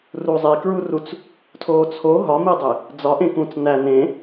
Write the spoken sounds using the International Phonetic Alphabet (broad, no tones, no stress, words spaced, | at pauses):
ruzˤikɹurut͡s | tʰoːt͡sʰo ɦɒmidˤe | d͡zɒʔẽkũːt͡s næ nẽ